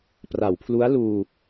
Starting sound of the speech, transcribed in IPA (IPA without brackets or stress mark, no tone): p